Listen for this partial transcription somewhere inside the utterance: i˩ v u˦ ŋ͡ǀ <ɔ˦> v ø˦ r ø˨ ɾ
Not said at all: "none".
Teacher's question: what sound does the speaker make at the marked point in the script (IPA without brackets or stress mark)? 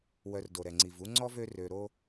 ɔ˥